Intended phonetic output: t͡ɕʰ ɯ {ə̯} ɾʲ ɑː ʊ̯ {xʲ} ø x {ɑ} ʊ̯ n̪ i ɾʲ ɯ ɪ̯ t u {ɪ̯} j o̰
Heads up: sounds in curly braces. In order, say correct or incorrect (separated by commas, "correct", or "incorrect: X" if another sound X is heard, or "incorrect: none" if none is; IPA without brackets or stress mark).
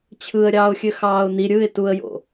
correct, correct, incorrect: ɑː, incorrect: ə̯